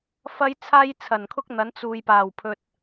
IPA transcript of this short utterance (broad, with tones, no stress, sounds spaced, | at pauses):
f ɐ˥ j t͡sʰ aː˥ j t͡sʰ ɐ˨˩ n kʰ ʊ˥ k̚ n̪ ɐ˨˧ n t͡s uː˨ j p aː˨˩ w pʰ ɵ˨ t̚